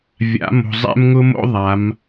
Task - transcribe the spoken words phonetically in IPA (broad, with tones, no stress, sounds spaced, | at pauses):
vʲ a̰˨˦ m o̤˨ zˤ ɛ̰˦ m ŋ ʊ˦ m o̰˦ ðˤ a˨˦ m